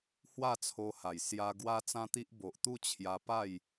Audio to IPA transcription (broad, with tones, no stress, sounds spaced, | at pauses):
h w a˥˧ t͡sʰ o˧ h a˨˩ j s j a˧ ɡ w a˦ t͡s ã˦ t̪ i˦ ʔ b o˨ ʔ t̪ u˥˧ t͡ɕʰ j a˧ p a˥˧ j